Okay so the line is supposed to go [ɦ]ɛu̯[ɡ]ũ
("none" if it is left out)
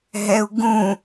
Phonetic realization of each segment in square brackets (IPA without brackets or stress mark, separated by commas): ɦ, ɡ